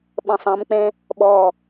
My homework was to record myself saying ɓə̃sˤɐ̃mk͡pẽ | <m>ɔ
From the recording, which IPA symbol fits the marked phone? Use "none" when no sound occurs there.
ɓ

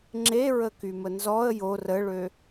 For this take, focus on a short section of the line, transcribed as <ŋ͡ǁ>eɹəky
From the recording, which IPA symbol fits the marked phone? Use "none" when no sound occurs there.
ŋ͡ǁ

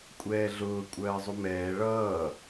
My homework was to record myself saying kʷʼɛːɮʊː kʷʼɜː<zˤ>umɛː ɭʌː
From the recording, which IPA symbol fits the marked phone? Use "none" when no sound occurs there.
zˤ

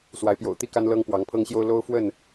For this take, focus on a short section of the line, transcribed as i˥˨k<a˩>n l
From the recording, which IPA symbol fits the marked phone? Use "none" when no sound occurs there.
a˦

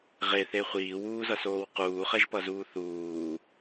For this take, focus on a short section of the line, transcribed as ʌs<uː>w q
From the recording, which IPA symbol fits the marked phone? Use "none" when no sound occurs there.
oː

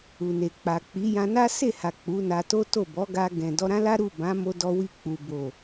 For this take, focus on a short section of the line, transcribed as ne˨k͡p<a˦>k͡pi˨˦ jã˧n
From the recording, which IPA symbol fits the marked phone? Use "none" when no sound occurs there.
a˨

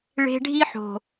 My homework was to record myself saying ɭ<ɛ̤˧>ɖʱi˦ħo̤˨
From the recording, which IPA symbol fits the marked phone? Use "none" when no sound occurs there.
e̤˧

